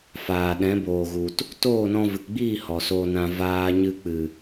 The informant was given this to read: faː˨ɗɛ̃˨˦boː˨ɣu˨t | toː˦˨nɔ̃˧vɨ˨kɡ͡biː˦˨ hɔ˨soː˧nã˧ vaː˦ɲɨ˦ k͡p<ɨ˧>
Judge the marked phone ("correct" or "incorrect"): incorrect